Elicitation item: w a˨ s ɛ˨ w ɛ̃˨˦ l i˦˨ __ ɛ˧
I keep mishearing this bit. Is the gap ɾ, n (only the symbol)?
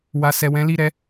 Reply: ɾ